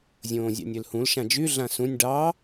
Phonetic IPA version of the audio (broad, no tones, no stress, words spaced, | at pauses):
zʲõːzʲɑ̰nʲølhũl ʃãd͡ʒy ɮãsũnʲ ɖɑ